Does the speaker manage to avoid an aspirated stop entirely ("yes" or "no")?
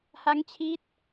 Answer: no